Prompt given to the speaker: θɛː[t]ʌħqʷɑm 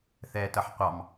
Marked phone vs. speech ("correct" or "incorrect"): correct